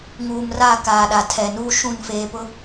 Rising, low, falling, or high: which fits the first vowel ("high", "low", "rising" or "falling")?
low